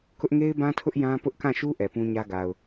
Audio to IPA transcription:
kʊ˦ʔŋe˦ɪ̯bã˦tʰʊ˦ʔ jã˦pʊ˦ʔ kã˦˨ʃu˦ ʔɛ˨pũ˦ɲä˦ ɡa˨ʊ̯

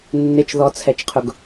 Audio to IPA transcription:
nːɪt͡ʃðɔt͡sʰɛt͡ʃqʰʊɡ

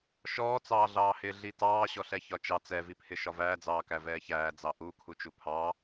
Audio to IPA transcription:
ʃɔːt͡sɑːɮɑːhɪː ɮitɑː ɕɔɬɛçɒt͡ʃɑ t͡sɛvipʰɪ ʃɒvæːd͡zɑːkæ vɛːçæː d͡zɑʔukʰu t͡ʃupʰɑ

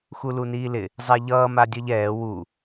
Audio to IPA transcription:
xuluniːlɪ | zˤɛʎʌː madʲʌʎɛː wu

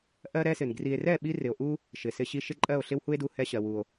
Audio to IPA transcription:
ʔɜ˦ɾɛ˦sɪ˨n ɡri˨e̯rɛ˦˨ɓi˧ rɪ˨o̯ʔu˦ | ʃɪ˨sɪ˧ɕi˧ʃɪ˦ ǃʼɜ˦˨o̯ɬɪ˦whu˦e̯du˧ hɛ˧ ɕɜ˨wu˨o̯

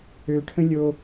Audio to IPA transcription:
øʈʰə̃ lʲo

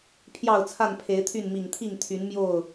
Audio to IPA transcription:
pʰjɑ˥˨ʊ̯t͡sʰa˥˨npʰe˨˦ɪ̯t̪ʰy˥˨n mi˨˩ŋt̪ʰi˥˨ŋt̪ʰy˨˦n mjo˥˨ʊ̯

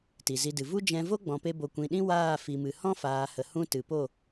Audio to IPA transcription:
ti˨zi˧dɨ˨ vu˦d͡ʒɛ̃˧ vo˦ɡ͡bɔ̃˨pe˧ bo˨kʷĩ˨ɗĩ˦ waː˦˨ fi˨mɨ˨ hɔ̃˦faː˨hə˨ hũ˦ tɨ˨po˦˨

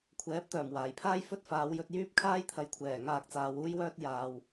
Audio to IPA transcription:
kʷʰɛː˨˥p̚t̪œː˨˩m waː˨˩jpʰaː˥j fɵ˥t̚ faː˨˧wjɵ˧t̚ jyː˥p̚kʰaː˥jt̪ʰɐ˨˥jkʷʰɛː˨˩ ŋaː˧k̚t͡saː˨˧w uː˥jwœː˥t̚ jaː˨w

